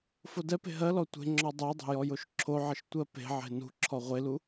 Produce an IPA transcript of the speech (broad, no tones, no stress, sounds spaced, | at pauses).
f o d ɛ p e̤ ɦ ɜ l ɔ tʷ e̤ ŋ͡ǁ ɔ dˤ ɛ dˤ e̤ j ɔ j o ʃ ǁʰ o ʕ ə ʃ tʷ ɜ p e̤ ʕ e̤ n ṳ ǁʰ ɔ ʁʷ e l u